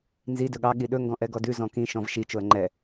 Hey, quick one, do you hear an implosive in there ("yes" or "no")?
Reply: yes